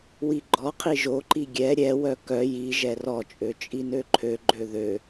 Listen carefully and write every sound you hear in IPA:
w i ɡ͡ǃ ɔ qʰ i ʒ o ǃ i ɡʲ ɛ ɾʲ ɛ w œ k œ j i ʒ ɛ r ɔ t͡ʃʼ ø t͡ʃʼ i n ø ǃʰ ø ɡ͡ǃ ø ð ø

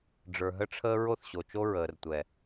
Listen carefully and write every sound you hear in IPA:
ɖ͡ʐ ə˞˨ ɦ ə˦ ʈ͡ʂʰ əː˦ ɹ o˦ θ ɕ o˨ t͡ʃ o˦ ɹ əː˨ r tʷ ɛ˨

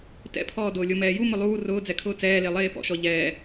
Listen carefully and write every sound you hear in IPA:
t ɛ̰ pʰ ɔː d ʊː lʲ ʊ m ɛː j u m ʊ lˠ uː r ʊː d͡z ɛ kʰ ʊː t͡s ɛː l e lˠ eː p ɔ̰ ʃ ɔ ʎ ɛː

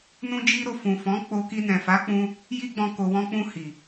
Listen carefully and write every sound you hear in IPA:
n ũ˦ d͡ʒ i˦ ɾ o˧ f ũ˨ f ɔ̃˨˦ k͡p o˧ k i˧ n ɛ̃˨ f a˨˦ k͡p ũ˧ | j i˦ ɡ͡b ɔ̃˧ k o˨ w ɔ̃˧ k͡p ũ˧ h i˨

